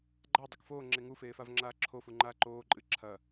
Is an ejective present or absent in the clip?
present